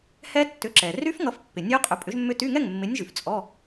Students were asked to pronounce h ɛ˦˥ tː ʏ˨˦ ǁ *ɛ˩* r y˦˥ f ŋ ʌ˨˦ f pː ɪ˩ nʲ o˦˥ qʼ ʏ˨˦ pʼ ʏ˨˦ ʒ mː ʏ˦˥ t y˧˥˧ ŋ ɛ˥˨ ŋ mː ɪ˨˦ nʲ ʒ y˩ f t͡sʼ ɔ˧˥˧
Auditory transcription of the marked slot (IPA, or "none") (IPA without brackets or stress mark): ɛ˩